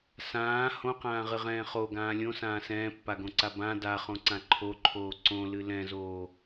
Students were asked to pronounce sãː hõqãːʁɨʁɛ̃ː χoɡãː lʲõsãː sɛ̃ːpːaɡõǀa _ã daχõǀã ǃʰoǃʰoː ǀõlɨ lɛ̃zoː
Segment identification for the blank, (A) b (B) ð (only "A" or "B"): A